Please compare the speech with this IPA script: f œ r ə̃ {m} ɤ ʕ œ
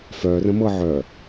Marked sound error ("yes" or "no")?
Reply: no